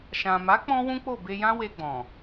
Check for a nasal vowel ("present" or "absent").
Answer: present